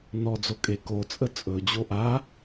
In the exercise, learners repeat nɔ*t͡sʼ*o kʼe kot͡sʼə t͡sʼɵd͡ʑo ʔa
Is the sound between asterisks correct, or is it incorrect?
incorrect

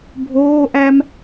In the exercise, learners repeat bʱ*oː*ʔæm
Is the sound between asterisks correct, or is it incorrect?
correct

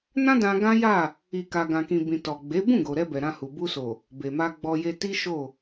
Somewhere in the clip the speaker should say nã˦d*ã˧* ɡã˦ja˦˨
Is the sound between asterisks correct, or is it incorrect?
correct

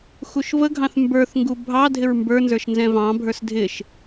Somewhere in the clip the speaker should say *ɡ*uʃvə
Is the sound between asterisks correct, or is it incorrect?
incorrect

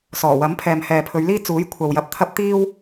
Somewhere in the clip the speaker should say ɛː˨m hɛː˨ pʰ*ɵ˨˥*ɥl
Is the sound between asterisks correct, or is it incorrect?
incorrect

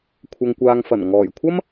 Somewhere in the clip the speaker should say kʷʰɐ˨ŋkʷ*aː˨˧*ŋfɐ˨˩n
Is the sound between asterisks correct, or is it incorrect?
incorrect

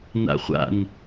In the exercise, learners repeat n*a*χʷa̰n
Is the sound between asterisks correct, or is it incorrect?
incorrect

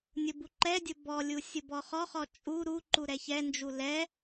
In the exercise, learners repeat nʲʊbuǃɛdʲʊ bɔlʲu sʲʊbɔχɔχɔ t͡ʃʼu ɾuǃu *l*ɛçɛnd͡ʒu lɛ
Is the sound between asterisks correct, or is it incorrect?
incorrect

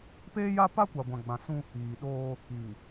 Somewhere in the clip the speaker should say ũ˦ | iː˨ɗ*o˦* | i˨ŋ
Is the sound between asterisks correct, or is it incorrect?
incorrect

